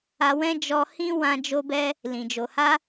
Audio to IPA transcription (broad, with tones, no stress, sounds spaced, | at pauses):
a˧ w ɛ̃˦ d͡ʒ ɔ˧ h ĩ˦ w ã˧ d͡ʒ o˧ b ɛ˧ | l ĩ˨ d͡ʒ o˨ h a˧